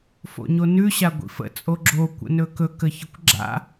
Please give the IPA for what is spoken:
f o̰ ɲ o n ʉ ɕ a ɡʷ ḭ f ə̰ t͡sʼ o ɡ͡ǁ o kʷ ə̰ n ɵ k ɵ k ə ç ə kʷ ɡ͡ǁ a̰

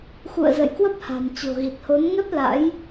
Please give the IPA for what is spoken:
x ṵ˧˨ ə̯ z ə̰˧˨ j k w ə˦˥ p̚ h a̤˨˩ m t͡ɕ o̤˨˩ ɣ i˨˩ t̚ h o˨˦ n ŋ ɛ˦˥ p̚ l a̰˧˥ j

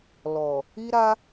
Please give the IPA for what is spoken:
l ɔ˨ | i˧ ɾ a˧

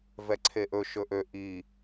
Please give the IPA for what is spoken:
v ɛ ǀʰ e ʔ ɵ ʃ ɵ ʔ ø ʔ i

